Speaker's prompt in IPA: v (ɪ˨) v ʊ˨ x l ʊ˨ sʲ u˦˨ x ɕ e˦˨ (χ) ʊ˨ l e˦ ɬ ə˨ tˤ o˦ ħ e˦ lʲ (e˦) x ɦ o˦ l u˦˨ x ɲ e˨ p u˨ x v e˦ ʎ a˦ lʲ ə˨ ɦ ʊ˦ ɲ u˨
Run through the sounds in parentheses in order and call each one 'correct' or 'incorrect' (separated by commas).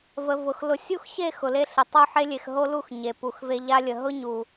incorrect, incorrect, incorrect